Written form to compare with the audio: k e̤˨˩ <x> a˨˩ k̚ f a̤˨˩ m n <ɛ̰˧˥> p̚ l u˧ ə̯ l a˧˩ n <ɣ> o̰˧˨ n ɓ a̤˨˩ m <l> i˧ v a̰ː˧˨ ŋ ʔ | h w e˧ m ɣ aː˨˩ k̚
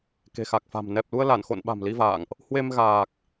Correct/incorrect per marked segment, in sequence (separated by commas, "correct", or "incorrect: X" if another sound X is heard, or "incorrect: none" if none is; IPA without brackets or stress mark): correct, incorrect: ɛ˨˩, incorrect: x, correct